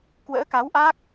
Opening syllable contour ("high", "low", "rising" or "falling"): rising